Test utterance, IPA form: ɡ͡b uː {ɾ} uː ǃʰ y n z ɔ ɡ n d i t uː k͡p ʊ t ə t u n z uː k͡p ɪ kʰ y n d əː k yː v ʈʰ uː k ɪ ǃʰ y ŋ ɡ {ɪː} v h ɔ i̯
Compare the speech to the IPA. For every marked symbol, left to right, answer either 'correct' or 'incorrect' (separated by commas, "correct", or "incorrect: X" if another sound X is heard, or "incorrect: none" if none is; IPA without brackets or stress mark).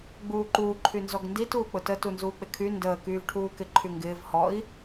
incorrect: ǃ, correct